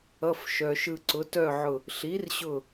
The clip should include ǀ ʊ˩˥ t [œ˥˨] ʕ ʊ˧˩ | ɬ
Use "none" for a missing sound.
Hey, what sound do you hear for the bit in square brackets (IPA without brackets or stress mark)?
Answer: œ˥˨